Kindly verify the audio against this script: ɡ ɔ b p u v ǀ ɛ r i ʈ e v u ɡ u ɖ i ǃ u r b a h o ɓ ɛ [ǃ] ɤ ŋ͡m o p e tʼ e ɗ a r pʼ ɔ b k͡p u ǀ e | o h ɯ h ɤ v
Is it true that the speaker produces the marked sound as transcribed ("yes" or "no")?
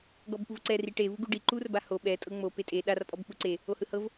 no